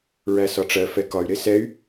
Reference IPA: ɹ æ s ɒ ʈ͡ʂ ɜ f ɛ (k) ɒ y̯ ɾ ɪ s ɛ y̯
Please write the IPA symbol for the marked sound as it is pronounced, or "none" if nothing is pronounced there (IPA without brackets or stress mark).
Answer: k